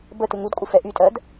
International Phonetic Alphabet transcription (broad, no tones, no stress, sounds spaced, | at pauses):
b ə t u ŋ u d kʷʼ ə f ɛ ʔ y tʼ ɜ d